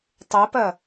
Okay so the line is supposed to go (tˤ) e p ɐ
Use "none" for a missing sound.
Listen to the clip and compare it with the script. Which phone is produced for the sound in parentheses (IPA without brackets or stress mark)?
tˤ